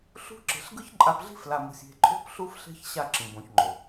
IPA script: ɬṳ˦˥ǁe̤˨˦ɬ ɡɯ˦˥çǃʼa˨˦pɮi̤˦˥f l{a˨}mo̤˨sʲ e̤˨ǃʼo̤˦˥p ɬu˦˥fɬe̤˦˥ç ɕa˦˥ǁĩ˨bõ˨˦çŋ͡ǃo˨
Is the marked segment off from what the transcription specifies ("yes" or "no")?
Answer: no